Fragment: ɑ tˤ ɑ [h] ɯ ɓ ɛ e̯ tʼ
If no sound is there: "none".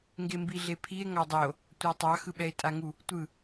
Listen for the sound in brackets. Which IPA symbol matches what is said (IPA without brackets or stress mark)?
x